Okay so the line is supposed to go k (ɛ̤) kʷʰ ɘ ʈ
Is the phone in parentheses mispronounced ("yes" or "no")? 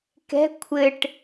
no